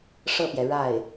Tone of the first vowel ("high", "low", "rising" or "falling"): falling